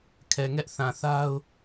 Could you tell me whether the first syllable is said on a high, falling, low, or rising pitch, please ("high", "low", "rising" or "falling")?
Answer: low